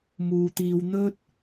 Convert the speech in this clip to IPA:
m uː˨ t̪ iː˨˧ w n̪ ɵ˥ t̚

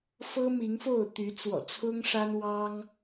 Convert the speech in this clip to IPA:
f ɤ˦ m i˨˦ ŋ f o˥˨ ʊ̯ t̪ y˨˦ t͡s w ɔ̰˨˩ t͡sʰ ʊ˦ ŋ ʂ a˦ n w ɑ˦ ŋ

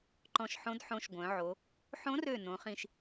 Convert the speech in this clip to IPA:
ǃ ɔ̃˧˩ ʃ ħ õ˧˥ d ħ õ˧˥ ʃ ɡʷ œ̃˩˧ ʕ o˩˧ | ħ õ˧˥ r ø˧˩ n õ˩˧ χ ĩ˧˩ ʃ

